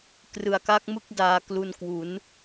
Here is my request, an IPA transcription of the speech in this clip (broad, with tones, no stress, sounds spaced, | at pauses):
k r ɯ˩˦ a̯ k a˦˥ k̚ m ɯ˥˩ k̚ d aː˧ k l u˧ n k w u˩˦ n